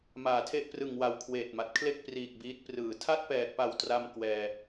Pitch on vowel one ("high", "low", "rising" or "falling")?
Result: low